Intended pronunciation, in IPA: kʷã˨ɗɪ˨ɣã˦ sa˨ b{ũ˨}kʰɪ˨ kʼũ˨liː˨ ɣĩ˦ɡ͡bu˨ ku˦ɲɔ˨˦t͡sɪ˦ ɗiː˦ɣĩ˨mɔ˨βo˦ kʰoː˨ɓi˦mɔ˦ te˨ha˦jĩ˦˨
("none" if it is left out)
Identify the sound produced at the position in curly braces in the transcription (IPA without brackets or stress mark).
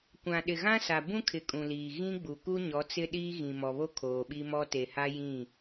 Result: ũ˦